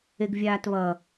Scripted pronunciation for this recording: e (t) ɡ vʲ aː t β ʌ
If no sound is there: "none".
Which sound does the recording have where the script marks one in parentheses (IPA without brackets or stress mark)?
none